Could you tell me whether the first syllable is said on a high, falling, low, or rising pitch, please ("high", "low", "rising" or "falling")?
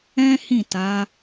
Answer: high